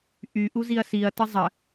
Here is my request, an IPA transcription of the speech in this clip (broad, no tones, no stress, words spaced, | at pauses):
ʔy ʔuziɐ̯siɐ̯tɘ zˤə